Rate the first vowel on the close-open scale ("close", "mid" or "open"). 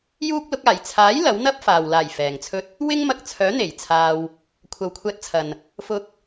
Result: close